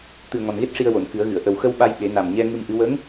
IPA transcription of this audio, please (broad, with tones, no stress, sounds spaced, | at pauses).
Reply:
t̪ ɨ˨˩ ə̯ ŋ ɔ˨˩ n ɣ e˦˥ t̚ ʂ i˧ ə̯ w o˨˩˨ n k ɨ˨˩˦ ə̯ ɣ ɨ˨˩˨ ə̯ ʔ ə˨˩ w x ə˧ w ɓ a˧ j ɓ e˨˩˦ n a˨˩ m ɲ ɛ˧ ŋ ɨ˧ m ʔ ɨ˧˥ w ə˧˥ ŋ